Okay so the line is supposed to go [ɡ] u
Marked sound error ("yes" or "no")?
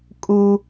yes